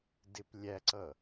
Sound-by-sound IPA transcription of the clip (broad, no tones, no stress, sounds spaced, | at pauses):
d ɪ p lʲ æ ǀ ʌ